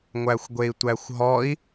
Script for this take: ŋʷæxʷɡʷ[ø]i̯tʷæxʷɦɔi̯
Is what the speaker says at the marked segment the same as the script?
no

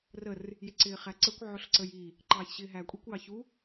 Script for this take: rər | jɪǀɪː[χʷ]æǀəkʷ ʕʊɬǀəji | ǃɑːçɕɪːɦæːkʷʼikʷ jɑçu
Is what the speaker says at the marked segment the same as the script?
no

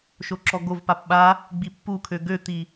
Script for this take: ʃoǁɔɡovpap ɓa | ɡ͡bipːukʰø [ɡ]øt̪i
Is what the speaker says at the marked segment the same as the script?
yes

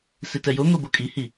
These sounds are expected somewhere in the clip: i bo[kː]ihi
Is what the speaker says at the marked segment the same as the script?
no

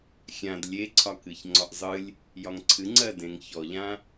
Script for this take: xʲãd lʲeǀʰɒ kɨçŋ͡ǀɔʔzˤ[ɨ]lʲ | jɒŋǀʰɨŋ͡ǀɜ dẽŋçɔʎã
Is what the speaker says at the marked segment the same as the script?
yes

